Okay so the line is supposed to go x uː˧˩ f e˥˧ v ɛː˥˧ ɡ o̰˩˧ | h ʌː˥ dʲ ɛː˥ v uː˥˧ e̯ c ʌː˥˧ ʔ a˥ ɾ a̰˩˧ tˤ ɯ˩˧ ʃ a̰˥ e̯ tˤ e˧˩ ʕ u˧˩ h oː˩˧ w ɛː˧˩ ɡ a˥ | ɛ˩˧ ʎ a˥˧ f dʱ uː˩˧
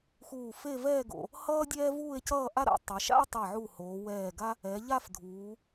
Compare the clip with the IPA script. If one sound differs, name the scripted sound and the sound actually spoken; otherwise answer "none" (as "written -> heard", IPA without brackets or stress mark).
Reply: none